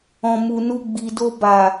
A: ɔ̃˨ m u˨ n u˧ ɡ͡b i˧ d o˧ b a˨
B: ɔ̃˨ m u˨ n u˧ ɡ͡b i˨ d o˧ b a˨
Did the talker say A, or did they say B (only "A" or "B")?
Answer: B